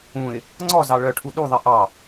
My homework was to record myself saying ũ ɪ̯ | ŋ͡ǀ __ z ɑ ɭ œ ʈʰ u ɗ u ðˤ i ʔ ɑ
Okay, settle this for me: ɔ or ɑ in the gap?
ɔ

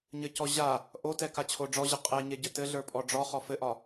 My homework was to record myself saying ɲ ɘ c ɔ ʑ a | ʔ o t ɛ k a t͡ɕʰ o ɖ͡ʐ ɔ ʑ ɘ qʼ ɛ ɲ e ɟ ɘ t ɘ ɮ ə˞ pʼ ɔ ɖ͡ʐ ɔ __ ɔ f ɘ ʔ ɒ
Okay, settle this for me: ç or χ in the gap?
χ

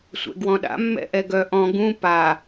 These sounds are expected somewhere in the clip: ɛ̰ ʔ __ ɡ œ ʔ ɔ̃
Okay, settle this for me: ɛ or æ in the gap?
ɛ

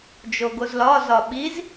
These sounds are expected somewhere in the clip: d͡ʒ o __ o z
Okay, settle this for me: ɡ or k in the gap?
ɡ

